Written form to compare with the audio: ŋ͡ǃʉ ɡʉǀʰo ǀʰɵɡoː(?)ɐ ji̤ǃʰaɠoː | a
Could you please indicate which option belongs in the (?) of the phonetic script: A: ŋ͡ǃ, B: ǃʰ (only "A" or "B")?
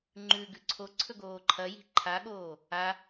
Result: B